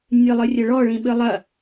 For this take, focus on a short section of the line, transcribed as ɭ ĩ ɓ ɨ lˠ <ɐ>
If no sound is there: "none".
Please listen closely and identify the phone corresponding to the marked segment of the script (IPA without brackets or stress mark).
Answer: ɐ